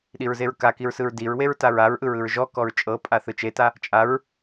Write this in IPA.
ɗiɹzeɹkakiɹ sɯɹdiɹweɹ taɹaɹʔɯɹ ɯɹʒɔkɔɹ t͡ʃʼɤpʼa θɯt͡ʃeta | t͡ʃʼaɹ

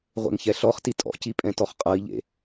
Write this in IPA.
ʁʷḛŋçɛɬɔχti tʼɔ̰ci pʼɛ̃tɔχqʼʌi̯ʎḛ

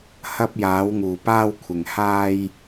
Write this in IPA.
hɐ˧p̚jaː˨˧wŋuː˨ paː˧wkʷʰɪ˨ŋ haː˧j

